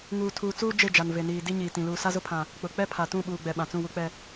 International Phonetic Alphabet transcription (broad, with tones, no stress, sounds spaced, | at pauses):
ŋ uː˨ tʰ uː˨ t͡s uː˦ d͡ʒ e˦˨ d͡ʒ a˨ n v e˨ n iː˨ d i˦ ɲ iː˨ t ĩ˨ l uː˨ s a˦ z ʊ˦ pʰ ã˨ | k͡p ʊ˨ k͡p ɛ˦ pʰ a˨ t ũ˦˨ ɓ uː˨ ɡ͡b ɛ˨ ɓ ã˨ t͡s ũ˦˨ w u˦ k͡p ɛ˦